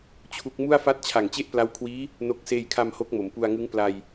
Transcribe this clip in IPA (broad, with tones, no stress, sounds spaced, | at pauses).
t͡ɕʰ u˦˥ k̚ m u˥˩ a̯ f a˥˩ t̚ t͡ɕʰ a˨˩ ŋ t͡ɕ e˥˩ ʔ p l a˦˥ w kʰ w iː˦˥ | n o˦˥ k̚ s eː˧ j kʰ a˧ m h o˦˥ k̚ m o˩˦ m p u˧ a̯ ŋ ɯ˦˥ ŋ p l a˧ j